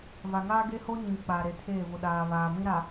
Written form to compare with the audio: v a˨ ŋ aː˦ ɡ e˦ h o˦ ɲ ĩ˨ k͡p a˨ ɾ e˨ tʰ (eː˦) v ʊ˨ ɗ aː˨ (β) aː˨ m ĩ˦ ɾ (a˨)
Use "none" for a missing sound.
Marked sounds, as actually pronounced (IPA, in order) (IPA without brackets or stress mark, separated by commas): eː˦˨, β, a˨